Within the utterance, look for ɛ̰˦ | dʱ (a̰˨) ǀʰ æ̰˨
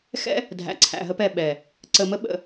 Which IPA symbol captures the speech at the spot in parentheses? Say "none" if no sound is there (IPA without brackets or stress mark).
æ̰˨